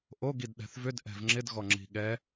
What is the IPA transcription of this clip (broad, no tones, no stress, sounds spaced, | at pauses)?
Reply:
ʔ o ɡ i d ɗ ɛ̤ θ v ʏ d ʔ ɛ̤ v ŋ͡ǁ ɪ d ɣ ɔ ŋ͡ǁ i̤ ɠ ɛ